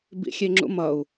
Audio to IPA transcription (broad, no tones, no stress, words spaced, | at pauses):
bḭxʲeŋ͡ǁṵmʌu̯